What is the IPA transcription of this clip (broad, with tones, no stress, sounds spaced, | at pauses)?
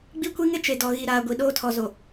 ɡ͡b i˦ kʷ i˦ ŋ ɪ˦ t͡ʃ e˨ d ɔ˨ ɣ i˨ ɾ aː˨ ɡʷ i˨ ɗ oː˦ tʰ ɔ˨ z o˨